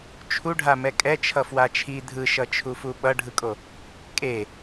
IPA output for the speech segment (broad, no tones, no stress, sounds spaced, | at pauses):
t͡ʃʰ u ɖʱ a m ɛ kʼ ɛ t͡ʃʰ ʌ f w a t͡ʃʰ i dʱ ɯ ʃ ʌ t͡ʃʰ u f u ɓ ʌ ɖʱ ɯ kʼ o | kʼ e